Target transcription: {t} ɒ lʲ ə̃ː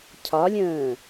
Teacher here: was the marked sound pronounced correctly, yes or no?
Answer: no